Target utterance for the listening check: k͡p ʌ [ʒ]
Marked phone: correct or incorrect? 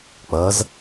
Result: incorrect